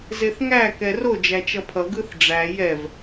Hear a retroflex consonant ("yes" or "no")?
yes